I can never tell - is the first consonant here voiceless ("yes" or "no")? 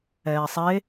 yes